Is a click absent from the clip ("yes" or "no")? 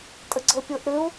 no